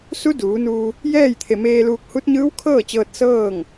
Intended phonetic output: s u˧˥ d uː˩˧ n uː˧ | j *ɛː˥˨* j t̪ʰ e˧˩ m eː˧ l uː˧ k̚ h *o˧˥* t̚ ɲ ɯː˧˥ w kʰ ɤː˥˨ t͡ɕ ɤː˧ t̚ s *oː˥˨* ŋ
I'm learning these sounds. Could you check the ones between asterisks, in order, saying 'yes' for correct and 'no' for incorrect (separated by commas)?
yes, no, no